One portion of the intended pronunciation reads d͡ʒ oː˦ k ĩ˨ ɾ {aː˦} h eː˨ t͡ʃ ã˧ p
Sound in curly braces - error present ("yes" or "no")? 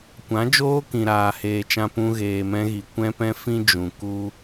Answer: yes